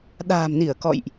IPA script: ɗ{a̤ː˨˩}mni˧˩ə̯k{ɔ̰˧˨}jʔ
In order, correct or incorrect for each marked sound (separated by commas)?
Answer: correct, correct